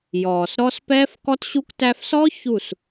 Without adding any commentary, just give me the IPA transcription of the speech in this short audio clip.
jɔː˨sɾɔ˦s pɛː˦fkɔ˦tɕu˦k tæ˧fsɔ˦ çu˦˨s

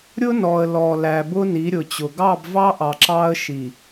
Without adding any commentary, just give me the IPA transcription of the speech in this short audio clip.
ɾʲʊ˦nɔ˨ə̯ lɔ˨læ˨ bʊ˦ni˨˦ɾʲʊ˨t͡ɕʊ˨ ɡɑ˦˨bvɑ˦ʔɑ˨ ǁɑ˦ə̯ʃi˨

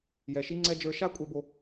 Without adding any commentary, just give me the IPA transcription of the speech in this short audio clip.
jɛ˨ʃi˧ŋ͡ǀɛ˧ d͡ʒə˞˧ʃa˦kʷʼɛ˧bo˧

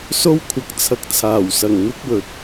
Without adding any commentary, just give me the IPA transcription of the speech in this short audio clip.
so˥wkʷʰɐ˨˥k̚ t͡sʰɐ˧k̚t͡sʰaː˨˩wsɐ˨˩ŋ n̪ɪ˥k̚wɵ˨t̚

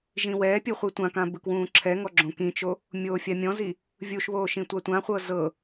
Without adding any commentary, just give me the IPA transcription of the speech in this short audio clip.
ʒĩwɛːpʲu χʷitʷãkã bɯkwũːǁʰɛŋɔ ɡ͡ǁõkĩt͡ʃo | mʲoːfʲamʲɔ̃zi | vʲuʃβoː ʃĩtʷatʷãχʷɤ zɤ

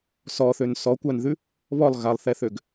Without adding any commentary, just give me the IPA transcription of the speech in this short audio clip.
sɔθøn sɔkʷanðʉ | βɔlˠ ɣalˠθɛθøɡ

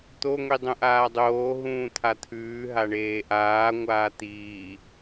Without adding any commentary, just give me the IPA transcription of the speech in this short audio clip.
t̪o ŋʷidˤũʔaːdˤoː ɦũːt̪ʰat̪ʰʉː ɦaɳeːʔaː ŋʷaːt̪iː

